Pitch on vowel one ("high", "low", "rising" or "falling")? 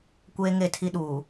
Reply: high